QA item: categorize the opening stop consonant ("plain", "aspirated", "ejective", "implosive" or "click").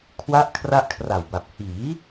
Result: aspirated